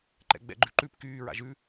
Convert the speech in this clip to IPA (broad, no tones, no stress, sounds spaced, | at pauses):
ǃ ɛ̰ ɡ͡b ɛ̰ ɡ͡ǃ ʉ ǃ ʉ p k yː ɹ a̰ ʒ ʉ